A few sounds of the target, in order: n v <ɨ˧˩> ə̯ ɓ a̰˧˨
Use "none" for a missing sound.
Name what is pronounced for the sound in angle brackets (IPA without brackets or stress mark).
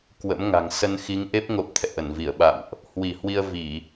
i˧˩